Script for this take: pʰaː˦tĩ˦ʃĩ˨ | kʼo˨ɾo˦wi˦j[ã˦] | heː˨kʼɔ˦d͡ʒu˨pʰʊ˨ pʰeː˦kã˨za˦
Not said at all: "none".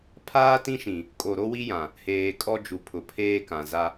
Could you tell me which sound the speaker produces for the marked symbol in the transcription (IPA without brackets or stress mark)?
ã˨